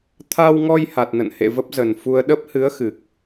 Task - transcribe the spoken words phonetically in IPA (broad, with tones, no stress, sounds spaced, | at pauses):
t̪ʰ a˧ w ŋ ɔ˧ j h a˨˩ t̚ n ə̰˧˨ n h ḛ˧˨ v ə˦˥ p̚ z ə˨˩ n f u˧ ə̯ ɗ ə˦˥ p̚ h ɨ˨˦ ə̯ x ɨ˨˩ k̚